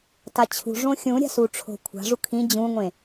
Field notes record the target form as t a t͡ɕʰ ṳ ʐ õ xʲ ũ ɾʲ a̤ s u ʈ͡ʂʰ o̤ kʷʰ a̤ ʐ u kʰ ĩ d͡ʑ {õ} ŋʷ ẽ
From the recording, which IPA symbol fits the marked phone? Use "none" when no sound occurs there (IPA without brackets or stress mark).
ũ